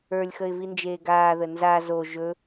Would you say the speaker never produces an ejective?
yes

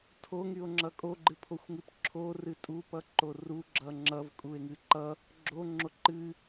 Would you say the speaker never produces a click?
no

